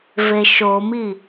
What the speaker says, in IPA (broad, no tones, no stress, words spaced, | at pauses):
veʃomi